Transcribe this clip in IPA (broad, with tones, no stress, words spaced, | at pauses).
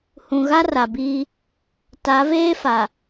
hũ˨ ɣa˦ra˨biː˦ | ta˨˦veː˦fa˨